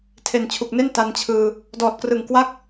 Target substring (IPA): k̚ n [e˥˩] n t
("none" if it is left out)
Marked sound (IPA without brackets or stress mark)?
e˥˩